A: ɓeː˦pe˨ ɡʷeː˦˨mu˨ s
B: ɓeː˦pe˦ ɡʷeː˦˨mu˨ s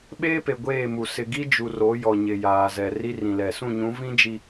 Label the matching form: A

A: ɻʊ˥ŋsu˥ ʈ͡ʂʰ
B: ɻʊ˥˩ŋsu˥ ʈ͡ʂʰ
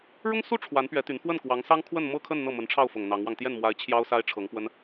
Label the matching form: A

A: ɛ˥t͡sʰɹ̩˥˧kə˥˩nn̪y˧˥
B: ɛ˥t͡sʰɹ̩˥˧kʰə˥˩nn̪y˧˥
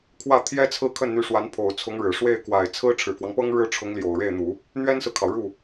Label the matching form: B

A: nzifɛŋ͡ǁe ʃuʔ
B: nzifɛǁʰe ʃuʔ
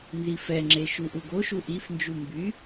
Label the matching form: A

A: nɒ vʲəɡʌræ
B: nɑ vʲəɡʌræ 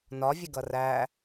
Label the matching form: A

